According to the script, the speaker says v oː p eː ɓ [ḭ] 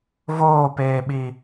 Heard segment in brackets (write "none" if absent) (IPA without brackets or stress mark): i